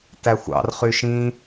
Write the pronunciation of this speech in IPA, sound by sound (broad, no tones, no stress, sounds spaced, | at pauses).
t æ xʷ ɑ̰ r χ y ʃ ĩ